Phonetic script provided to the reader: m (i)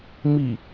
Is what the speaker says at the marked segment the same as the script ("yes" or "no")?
yes